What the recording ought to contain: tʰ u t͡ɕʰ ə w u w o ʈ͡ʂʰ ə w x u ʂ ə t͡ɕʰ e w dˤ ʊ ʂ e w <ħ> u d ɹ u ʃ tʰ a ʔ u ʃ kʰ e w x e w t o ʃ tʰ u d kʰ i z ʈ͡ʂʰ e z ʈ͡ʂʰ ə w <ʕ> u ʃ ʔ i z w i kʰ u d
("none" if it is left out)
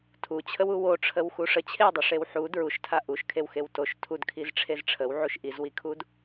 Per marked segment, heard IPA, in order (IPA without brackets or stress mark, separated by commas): ħ, ʕ